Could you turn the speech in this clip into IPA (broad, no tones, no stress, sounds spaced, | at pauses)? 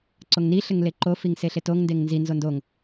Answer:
ǀ o ŋ n i ɬ ɘ ŋ l e ǃ o f i ŋ s e ɬ e t o ŋ n d e ŋ n z i n z o n d o ŋ